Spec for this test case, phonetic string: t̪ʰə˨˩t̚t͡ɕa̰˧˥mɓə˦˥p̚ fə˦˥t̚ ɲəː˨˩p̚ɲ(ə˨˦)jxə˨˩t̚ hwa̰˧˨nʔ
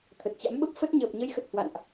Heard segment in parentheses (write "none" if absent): ə˨˦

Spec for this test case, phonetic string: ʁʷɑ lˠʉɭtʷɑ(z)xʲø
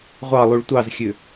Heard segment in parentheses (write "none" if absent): z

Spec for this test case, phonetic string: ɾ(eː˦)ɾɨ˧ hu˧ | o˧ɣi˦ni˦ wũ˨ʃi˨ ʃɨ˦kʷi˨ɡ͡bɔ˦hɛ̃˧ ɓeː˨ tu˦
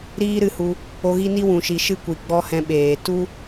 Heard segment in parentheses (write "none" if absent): iː˦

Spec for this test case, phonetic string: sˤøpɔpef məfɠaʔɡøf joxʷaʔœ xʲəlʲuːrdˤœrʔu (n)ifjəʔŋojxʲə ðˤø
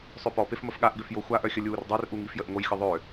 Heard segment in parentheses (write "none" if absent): ŋ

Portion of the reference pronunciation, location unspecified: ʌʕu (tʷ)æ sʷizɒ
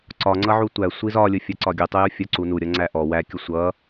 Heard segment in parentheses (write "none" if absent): tʷ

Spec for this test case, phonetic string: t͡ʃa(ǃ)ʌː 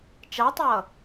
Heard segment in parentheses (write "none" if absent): tˤ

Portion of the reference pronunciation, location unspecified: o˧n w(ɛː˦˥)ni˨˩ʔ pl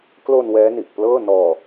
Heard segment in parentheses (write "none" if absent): ɛː˦˥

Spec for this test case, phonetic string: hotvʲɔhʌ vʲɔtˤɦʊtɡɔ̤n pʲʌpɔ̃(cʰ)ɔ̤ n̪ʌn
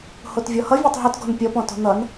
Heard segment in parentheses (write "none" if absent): t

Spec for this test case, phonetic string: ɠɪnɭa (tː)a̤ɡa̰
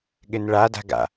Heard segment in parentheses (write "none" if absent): d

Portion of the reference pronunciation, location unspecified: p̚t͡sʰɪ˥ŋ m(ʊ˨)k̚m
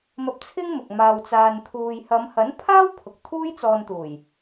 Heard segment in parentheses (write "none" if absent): ʊ˨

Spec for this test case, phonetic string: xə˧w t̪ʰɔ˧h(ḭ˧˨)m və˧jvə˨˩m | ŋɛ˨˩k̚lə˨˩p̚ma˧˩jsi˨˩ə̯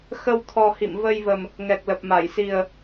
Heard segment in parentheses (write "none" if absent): ḭ˧˨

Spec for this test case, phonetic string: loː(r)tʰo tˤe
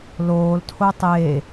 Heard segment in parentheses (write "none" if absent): l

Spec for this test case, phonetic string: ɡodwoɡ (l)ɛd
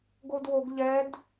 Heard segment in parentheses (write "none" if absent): ʎ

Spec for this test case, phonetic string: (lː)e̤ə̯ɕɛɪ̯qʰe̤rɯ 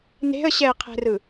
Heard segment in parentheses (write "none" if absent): n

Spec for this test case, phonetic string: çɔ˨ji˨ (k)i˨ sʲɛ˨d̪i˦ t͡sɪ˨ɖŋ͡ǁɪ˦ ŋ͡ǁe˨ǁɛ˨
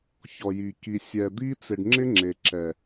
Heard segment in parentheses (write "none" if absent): k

